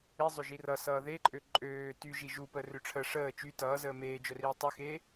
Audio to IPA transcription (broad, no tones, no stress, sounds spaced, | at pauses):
i zˤ ø ʒ i r ʌ s ʌː ð e ǃʼ ø ǃʼ øː t y ʒ i ʒ u p əː r ø ʈ͡ʂʰ ə ʂ əː t͡ʃ y t ʌː z əː m eː d͡ʒ œ r iː tˤ ø x e